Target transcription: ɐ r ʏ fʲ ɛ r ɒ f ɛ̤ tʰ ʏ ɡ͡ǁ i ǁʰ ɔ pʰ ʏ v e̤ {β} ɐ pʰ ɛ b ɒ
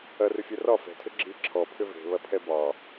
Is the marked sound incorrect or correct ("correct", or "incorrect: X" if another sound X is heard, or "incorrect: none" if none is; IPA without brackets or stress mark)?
correct